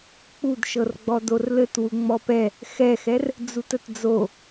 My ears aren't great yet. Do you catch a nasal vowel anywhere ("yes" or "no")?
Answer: no